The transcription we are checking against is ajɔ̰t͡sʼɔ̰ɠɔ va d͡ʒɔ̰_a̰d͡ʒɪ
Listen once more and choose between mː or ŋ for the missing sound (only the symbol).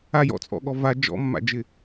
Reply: mː